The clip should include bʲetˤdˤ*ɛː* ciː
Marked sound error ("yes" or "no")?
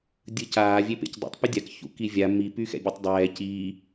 no